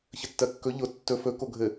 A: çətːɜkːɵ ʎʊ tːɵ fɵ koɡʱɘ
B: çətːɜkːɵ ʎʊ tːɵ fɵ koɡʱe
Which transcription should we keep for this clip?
A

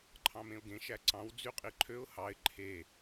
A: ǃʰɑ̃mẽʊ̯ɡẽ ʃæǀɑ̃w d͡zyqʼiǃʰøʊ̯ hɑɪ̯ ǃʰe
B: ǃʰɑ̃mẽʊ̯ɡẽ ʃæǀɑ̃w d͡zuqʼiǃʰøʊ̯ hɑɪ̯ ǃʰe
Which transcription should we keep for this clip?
A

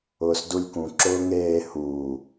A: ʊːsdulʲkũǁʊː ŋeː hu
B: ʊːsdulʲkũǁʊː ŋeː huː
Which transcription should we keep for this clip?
B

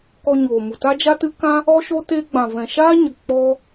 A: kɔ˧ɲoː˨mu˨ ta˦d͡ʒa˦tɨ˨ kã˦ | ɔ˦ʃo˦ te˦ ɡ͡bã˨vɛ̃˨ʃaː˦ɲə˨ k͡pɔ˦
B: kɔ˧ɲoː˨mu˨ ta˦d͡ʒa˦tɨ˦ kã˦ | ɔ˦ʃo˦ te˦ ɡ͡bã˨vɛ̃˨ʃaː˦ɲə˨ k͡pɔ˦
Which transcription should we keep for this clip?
B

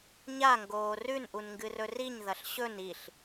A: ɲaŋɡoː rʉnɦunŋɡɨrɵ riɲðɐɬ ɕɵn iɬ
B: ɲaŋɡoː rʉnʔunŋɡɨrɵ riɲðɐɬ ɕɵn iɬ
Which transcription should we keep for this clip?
B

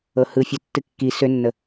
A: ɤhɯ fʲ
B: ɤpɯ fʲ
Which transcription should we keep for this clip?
A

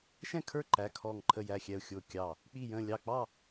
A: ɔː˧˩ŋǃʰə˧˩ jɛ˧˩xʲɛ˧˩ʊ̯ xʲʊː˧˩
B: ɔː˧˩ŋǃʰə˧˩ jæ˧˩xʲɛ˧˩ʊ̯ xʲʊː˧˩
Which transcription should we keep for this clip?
B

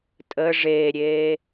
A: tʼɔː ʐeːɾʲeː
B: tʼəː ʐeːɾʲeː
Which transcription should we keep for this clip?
B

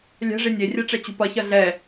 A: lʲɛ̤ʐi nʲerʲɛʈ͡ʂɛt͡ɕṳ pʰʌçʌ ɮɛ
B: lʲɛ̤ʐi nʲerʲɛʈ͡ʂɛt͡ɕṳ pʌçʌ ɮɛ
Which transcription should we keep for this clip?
B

